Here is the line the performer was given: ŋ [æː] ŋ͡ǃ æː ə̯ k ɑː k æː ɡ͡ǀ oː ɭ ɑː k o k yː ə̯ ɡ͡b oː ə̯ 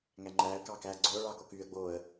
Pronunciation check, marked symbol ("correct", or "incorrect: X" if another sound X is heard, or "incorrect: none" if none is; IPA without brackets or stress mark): incorrect: æ